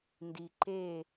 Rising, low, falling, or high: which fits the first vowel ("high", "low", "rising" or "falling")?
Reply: low